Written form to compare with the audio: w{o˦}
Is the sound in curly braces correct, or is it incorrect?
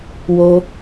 correct